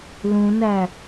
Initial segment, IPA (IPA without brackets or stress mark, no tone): l